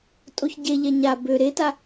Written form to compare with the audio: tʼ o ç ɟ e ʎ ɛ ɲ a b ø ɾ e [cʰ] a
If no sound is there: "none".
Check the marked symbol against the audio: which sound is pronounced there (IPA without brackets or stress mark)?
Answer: t